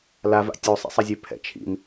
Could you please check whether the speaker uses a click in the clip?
no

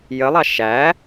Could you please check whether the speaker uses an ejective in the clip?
no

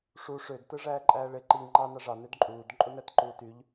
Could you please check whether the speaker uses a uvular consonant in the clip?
no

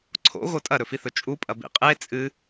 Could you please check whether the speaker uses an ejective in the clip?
yes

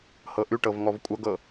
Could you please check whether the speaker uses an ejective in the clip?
yes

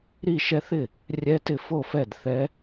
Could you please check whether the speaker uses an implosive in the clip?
no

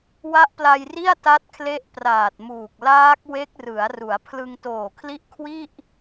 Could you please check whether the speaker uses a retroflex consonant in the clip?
no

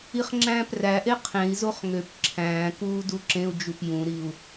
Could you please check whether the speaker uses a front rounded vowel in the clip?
yes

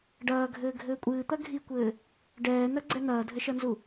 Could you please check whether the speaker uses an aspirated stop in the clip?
no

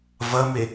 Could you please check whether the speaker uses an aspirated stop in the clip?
no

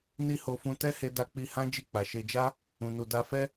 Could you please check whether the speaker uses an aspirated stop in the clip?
no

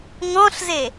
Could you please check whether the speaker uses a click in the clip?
no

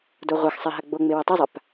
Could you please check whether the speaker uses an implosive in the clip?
no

